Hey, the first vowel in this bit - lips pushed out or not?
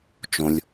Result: yes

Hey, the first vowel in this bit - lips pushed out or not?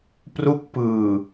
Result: yes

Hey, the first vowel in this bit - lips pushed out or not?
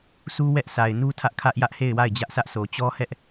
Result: yes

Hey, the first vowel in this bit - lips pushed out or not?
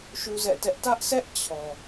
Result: yes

